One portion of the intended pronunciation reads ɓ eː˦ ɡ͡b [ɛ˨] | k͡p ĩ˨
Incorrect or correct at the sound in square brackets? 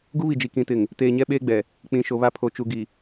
correct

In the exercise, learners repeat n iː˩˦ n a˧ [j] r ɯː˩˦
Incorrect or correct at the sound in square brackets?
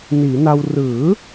incorrect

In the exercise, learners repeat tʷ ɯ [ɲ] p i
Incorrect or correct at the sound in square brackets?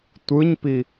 correct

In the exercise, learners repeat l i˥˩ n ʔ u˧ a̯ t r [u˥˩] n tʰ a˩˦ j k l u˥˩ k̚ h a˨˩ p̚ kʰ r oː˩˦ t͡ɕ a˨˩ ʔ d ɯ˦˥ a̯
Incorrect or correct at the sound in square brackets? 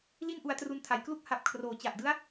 incorrect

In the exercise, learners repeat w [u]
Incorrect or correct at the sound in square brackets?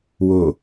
incorrect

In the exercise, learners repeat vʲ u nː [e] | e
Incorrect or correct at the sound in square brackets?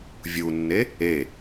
correct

